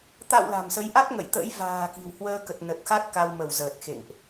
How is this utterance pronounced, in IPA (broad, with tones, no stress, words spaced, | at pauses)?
t̪a̰˧˨w la̤˨˩msə˨˦jʔa˦˥t̚ ŋə̰˧˨jt̪ə̰˧˥j va̤ː˨˩ ki̤˨˩w hwəː˧kə˨˩t̚nə˨˩t̚xa˦˥t̚ ka˧wmə˧˩wzəː˨˩t̚xḛ˧˨ŋʔ